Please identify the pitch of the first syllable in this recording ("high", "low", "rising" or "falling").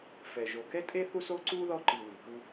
low